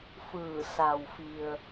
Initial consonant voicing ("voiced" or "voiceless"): voiceless